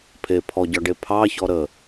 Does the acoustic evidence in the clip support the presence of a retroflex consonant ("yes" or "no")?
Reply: yes